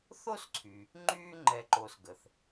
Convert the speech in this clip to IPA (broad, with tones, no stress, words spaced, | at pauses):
θo˥sǀʰy˩ | ŋ͡ǃyː˥ ŋ͡ǃɛ˨ǃo˨sɡə˩θ